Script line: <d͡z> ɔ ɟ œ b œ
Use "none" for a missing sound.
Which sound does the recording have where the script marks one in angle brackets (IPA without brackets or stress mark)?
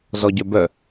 z